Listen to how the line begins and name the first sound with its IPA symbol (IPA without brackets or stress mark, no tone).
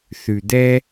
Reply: θ